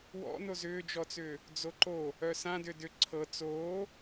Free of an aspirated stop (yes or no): no